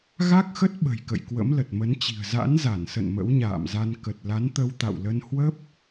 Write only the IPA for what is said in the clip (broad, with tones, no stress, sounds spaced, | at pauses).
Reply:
ɣ a˦˥ k̚ x ə˦˥ t̚ ɓ ə̤˨˩ j k ə̰˧˨ j k w ə̰˧˥ m l ə˨˩ t̚ m ə˨˦ n t͡ɕ i̤˨˩ ə̯ z a̰˧˥ n z a˧˩ n s ə̰˧˨ n m ə̰˧˥ w ɲ a̰ː˧˨ m z a˧ n k ə˨˩ t̚ l a˨˦ n t̪ ə˧ w t̪ a̰˧˨ w l ə˧ n h w ə˦˥ p̚